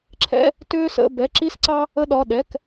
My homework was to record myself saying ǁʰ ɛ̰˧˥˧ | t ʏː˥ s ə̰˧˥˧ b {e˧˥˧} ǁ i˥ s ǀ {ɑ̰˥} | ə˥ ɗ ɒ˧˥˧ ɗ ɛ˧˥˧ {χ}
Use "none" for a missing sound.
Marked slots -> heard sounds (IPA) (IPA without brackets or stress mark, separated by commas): ɛ˧˥˧, ɑ˥, k